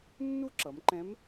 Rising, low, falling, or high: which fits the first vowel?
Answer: high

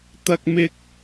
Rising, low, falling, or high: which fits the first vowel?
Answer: low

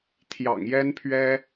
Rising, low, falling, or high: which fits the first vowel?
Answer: low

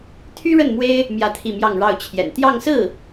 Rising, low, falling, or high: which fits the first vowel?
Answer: high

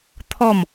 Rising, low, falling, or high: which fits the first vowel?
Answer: falling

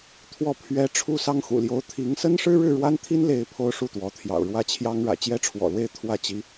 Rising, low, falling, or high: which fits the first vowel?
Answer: falling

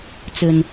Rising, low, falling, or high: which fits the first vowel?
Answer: low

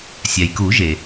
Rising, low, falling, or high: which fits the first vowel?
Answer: low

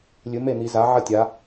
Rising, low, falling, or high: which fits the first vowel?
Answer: rising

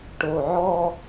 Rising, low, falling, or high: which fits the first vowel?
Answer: low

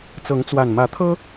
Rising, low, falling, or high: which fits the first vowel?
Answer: rising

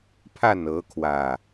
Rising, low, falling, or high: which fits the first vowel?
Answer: falling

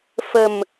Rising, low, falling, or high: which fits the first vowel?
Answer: low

